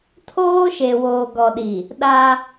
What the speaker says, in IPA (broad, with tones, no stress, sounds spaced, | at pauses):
tʰ oː˦ ʃ e˨ w oː˨ ɡ ɔ˨ ɗ i˨ | ɗ a˦